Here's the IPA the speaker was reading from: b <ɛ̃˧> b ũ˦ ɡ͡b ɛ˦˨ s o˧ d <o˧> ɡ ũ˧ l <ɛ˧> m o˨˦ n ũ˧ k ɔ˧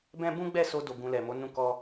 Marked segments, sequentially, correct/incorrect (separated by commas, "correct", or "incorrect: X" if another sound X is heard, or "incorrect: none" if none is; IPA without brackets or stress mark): incorrect: ɛ̃˦, correct, incorrect: ɛ˨